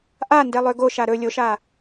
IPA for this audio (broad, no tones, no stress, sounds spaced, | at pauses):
ʔ a n d ɛ lˠ ø ɡ o ʃ a ɾ ɵ lʲ o ʃ a